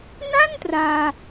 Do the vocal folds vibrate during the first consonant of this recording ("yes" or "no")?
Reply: yes